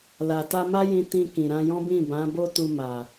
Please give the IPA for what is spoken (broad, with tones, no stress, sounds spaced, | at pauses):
l a˨ t a˧ m a˦ j ĩ˧ t ĩ˧ k ĩ˨ ɾ ã˧ j ɔ̃˦ b ĩ˦˨ b ã˨˦ b o˦ t u˧ m a˨